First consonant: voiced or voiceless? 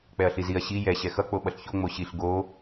voiceless